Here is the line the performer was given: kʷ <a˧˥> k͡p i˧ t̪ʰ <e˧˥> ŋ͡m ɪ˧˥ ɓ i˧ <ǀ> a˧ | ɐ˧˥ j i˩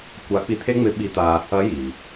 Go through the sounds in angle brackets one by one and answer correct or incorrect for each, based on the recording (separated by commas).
correct, incorrect, incorrect